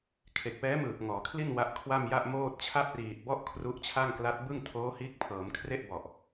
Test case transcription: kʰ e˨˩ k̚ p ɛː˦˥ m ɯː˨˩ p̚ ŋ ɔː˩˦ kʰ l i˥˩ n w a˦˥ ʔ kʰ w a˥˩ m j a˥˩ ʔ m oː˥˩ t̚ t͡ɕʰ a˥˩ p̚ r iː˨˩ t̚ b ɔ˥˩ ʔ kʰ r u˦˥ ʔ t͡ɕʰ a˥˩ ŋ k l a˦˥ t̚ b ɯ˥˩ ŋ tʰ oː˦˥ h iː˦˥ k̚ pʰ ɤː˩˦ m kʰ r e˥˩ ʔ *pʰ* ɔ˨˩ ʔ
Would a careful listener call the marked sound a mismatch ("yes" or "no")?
yes